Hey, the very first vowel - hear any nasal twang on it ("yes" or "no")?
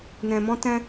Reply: yes